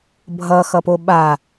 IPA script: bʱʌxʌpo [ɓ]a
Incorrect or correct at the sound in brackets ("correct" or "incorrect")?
correct